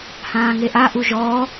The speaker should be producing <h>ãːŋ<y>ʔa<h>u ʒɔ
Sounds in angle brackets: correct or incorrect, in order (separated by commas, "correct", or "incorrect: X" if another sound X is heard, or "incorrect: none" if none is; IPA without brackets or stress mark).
correct, incorrect: e, incorrect: ʔ